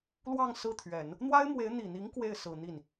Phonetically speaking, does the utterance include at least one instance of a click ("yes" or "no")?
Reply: no